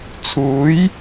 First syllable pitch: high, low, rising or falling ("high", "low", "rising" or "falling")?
rising